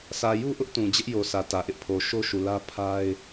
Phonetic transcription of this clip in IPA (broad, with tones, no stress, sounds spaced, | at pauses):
s ä˨ j u˦ ʔ ʊ˦ ʔ t ũ˨ d͡ʑ ɪ˦ ʔ j o˨ s ä˨ t ä˨ ʔ ɪ˦ ʔ pʰ o˨ ʃ o˦ ʃ u˨ l ä˦ pʰ a˦ ɪ̯